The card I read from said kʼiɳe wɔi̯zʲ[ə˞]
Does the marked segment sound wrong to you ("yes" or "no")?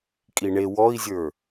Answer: no